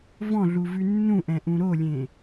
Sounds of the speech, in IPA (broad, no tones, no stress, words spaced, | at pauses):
vɔ̃ɮuvʉ nːũʔɛ̃ʔũ ɾolʲẽ